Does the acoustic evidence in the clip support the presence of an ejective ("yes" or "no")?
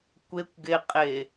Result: yes